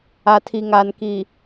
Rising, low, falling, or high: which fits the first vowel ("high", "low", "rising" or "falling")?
low